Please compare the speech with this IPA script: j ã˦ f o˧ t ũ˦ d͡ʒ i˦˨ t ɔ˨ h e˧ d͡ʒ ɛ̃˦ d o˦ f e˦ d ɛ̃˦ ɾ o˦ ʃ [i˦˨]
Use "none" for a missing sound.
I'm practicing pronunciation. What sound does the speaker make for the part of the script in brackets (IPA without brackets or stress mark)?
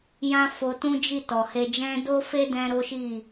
i˦˨